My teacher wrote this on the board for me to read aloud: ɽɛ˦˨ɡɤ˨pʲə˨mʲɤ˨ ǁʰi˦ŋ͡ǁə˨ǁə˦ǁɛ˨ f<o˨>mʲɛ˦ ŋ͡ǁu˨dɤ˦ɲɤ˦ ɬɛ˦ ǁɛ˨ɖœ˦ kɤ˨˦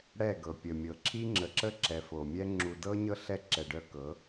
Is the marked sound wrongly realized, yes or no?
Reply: no